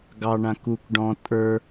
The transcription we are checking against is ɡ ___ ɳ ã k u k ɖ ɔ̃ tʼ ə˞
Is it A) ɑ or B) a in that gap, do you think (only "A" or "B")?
A